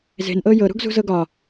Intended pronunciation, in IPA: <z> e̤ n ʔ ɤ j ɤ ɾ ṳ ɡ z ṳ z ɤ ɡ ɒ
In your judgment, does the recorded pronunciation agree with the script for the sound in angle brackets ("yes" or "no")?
yes